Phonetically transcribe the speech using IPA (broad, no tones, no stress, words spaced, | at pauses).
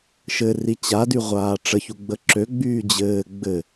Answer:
ʃɘ rit͡ɕady ʁʷaːʈ͡ʂəçu ɡ͡bəǁø ɡ͡byːd͡ʑɘː ɡ͡bɘ